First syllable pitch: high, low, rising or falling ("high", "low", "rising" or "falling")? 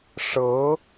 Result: rising